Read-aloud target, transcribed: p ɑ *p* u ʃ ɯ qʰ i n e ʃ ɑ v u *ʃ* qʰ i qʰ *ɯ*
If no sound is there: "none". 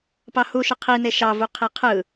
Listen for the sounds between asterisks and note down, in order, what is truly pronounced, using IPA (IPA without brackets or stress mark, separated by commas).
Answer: h, none, ɯ